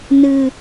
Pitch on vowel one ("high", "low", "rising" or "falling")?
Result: low